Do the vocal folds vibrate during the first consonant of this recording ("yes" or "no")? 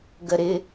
yes